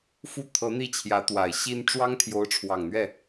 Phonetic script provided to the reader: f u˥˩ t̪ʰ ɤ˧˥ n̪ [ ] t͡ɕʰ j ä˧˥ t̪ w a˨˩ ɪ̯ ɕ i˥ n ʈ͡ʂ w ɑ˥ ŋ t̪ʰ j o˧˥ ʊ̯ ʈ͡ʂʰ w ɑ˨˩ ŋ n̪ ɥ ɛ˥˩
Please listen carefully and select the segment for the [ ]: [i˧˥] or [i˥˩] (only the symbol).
i˥˩